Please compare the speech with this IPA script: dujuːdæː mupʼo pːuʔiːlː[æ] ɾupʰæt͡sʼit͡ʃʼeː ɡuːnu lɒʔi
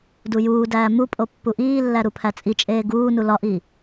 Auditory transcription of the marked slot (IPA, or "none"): æ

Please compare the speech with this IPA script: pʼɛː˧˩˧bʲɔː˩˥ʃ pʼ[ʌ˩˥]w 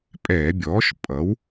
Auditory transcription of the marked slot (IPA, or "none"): ʌ˩˥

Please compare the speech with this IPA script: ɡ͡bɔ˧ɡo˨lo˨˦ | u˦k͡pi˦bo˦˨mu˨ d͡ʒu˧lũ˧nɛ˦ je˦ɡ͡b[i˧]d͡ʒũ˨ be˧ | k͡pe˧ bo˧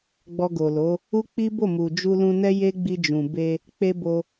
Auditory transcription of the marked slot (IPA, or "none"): i˧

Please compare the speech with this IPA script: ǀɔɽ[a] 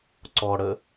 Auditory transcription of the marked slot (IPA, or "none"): ə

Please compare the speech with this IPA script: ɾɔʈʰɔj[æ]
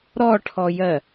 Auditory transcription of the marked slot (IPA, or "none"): ɜ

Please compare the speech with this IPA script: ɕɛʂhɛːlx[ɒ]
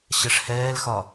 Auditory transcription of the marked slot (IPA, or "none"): ɒ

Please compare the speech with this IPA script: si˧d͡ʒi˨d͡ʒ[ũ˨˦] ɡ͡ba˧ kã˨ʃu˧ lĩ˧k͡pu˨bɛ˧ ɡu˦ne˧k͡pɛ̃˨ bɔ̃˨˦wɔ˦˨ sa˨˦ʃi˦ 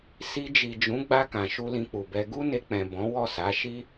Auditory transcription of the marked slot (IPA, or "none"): ũ˨˦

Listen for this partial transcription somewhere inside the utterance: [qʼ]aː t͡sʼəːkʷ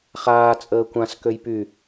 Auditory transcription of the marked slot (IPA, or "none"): χ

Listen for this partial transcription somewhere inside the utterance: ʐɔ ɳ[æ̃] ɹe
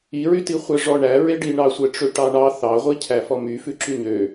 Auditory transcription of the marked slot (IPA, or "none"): æ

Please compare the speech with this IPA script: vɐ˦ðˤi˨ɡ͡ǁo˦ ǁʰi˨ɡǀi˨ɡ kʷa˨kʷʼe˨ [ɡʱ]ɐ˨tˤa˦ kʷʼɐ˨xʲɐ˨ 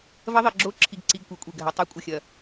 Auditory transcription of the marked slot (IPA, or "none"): ɡʱ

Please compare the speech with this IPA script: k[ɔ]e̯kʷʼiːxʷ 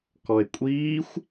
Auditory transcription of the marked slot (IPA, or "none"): ɔ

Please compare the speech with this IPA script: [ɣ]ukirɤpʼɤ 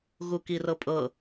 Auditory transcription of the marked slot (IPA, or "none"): ɣ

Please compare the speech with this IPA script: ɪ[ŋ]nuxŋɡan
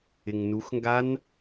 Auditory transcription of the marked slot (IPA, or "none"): ŋ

